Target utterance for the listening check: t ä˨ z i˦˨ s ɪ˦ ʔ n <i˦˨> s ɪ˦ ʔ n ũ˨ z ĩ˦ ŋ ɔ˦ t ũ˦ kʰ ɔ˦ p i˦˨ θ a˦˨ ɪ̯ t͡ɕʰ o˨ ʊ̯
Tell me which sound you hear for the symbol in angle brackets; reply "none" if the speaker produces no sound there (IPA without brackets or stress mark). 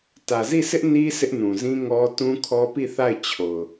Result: i˦